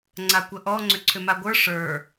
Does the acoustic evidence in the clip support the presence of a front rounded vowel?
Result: yes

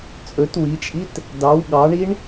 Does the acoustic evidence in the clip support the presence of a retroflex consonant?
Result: yes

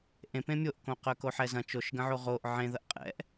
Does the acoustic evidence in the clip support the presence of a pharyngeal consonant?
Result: yes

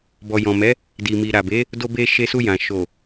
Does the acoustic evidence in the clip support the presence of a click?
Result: no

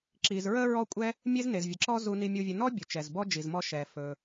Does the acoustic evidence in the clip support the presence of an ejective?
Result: yes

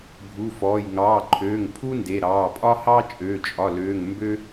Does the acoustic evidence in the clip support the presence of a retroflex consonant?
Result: no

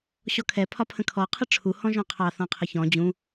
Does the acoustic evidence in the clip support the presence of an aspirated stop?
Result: yes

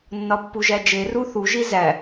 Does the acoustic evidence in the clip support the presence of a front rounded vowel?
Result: no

